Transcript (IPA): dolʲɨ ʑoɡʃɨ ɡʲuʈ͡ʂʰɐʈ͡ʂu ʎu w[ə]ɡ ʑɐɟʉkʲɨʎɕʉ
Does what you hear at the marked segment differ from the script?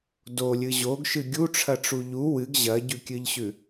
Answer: yes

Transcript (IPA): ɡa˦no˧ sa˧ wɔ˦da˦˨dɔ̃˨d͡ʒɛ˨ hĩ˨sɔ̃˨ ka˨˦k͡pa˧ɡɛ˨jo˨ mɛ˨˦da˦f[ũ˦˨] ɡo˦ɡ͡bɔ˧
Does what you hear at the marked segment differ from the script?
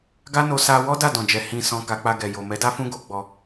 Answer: yes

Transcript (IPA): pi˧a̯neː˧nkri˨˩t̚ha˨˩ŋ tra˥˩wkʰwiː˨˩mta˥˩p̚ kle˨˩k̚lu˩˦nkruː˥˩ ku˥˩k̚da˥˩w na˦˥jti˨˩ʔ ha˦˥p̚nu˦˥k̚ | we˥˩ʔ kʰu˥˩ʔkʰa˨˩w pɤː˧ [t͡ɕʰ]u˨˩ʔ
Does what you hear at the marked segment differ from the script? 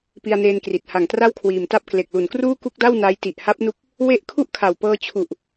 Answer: no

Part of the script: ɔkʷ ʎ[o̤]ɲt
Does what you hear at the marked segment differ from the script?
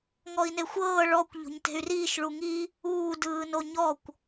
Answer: no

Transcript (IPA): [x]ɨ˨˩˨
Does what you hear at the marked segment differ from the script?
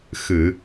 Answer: no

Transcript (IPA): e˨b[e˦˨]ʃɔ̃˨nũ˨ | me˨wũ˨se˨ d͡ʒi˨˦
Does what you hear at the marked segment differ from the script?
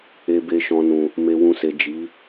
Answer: yes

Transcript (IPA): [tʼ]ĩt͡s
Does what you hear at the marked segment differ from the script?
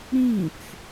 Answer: yes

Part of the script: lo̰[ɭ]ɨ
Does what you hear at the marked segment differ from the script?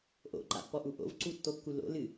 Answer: yes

